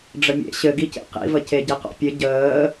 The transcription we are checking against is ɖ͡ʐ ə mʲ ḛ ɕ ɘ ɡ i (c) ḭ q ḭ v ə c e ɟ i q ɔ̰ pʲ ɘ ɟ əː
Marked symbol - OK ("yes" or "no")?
yes